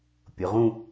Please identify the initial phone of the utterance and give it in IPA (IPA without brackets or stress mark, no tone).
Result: pʲ